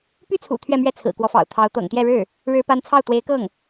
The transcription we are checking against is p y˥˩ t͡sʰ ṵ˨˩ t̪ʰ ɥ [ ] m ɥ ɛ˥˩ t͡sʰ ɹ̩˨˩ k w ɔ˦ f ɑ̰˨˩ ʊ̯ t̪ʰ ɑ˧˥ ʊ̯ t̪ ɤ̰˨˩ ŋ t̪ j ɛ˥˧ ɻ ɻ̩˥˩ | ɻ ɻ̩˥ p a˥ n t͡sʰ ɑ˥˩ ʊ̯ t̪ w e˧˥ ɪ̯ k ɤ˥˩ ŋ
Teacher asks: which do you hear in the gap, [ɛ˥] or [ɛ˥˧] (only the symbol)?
ɛ˥˧